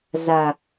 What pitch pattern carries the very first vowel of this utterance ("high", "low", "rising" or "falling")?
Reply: low